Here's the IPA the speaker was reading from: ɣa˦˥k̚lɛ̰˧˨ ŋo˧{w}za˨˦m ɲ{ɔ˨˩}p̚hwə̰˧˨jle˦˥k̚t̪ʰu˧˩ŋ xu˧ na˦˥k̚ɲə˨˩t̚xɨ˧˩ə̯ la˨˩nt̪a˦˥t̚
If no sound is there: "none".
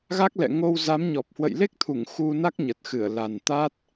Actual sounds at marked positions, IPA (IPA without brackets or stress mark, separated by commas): w, ɔ˨˩